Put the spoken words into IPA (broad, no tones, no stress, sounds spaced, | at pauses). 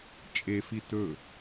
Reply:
t͡ʃʼ e f i t ɵ